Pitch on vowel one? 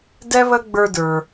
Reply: high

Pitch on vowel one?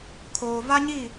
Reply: low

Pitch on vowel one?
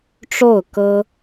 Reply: falling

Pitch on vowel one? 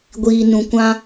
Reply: low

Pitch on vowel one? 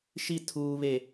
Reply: high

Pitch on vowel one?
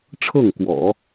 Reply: falling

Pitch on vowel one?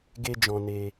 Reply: high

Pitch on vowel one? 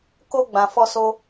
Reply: high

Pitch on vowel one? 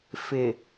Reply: low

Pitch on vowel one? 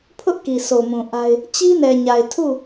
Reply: high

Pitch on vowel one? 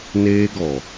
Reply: high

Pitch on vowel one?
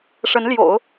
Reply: rising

